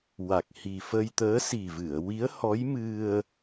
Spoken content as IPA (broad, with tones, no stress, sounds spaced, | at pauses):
w a˨˩ k̚ h i˨˩ f ə˧ j t̪ əː˧˥ s i˨˩ v ɨ˨˩˨ ə̯ w i˧˥ ə̯ h ɔ˧˥ j m ɨ˧ ə̯